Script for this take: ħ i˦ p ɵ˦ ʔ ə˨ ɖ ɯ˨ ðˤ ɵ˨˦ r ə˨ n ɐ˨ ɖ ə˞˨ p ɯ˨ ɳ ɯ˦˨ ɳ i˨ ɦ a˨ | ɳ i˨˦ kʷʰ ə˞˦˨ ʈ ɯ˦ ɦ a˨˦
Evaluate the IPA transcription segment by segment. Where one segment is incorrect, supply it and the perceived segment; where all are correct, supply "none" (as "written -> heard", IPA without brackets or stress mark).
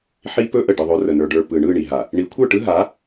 ɐ˨ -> ə˞˨